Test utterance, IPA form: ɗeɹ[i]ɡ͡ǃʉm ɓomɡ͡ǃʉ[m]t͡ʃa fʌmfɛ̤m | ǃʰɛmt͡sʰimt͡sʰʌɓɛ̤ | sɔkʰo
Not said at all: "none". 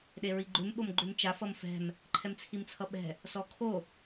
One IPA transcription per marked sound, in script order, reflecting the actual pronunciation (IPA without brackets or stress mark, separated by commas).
i, m